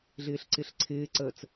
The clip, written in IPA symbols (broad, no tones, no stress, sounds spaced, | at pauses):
ɮ ɪː ɬ ǀ ɪ ɬ ǀʰ ɪː ǀ əː t͡s